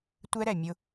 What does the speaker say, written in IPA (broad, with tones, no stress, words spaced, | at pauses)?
tʷɛ˦ɾɛ˨ mʲʊ˦